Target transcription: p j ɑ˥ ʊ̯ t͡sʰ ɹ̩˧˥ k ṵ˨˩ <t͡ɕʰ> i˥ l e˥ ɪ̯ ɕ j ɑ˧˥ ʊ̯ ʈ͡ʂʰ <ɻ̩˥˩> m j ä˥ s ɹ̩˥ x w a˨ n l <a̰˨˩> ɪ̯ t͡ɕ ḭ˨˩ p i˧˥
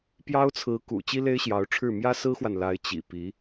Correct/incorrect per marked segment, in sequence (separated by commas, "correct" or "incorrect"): incorrect, correct, incorrect